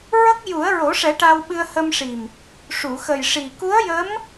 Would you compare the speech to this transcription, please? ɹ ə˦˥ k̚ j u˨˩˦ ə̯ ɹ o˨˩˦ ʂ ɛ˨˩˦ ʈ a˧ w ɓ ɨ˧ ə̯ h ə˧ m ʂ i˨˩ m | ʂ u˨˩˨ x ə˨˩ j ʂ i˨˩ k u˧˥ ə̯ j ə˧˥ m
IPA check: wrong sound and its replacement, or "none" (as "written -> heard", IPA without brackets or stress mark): none